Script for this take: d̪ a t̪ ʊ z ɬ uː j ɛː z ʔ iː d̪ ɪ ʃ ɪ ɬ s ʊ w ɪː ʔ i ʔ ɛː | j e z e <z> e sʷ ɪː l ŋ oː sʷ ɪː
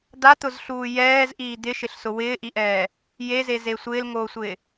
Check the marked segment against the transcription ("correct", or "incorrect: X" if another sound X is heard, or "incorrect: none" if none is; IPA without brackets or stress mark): correct